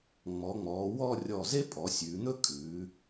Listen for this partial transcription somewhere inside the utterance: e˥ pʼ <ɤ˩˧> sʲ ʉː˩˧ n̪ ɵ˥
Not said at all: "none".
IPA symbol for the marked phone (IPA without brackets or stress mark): ɔ˩˧